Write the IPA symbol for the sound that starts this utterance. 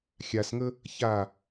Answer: xʲ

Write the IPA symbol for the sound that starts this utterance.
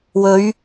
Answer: w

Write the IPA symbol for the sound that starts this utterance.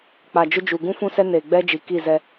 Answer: k͡p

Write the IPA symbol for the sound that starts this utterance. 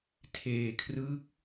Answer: tʰ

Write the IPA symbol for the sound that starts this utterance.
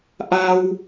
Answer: ʔ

